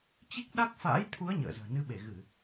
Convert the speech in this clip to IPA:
t͡ɕ i˦˥ k̚ ɗ a˦˥ k̚ f a̰ː˧˥ j t̪ʰ u˨˦ ə̯ ɲ ə̰ː˧˨ z ə̤ː˨˩ n ɨ˨˦ ɓ e˧˩ ɣ ɨ˧˩˨

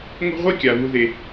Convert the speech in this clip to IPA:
ŋʷ e̤˥ ʁʷ i˥ kʲ a˩ β u˨ ð e˩

